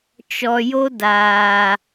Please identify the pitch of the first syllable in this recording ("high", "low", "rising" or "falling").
low